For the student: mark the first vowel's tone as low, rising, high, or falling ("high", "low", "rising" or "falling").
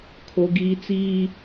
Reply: high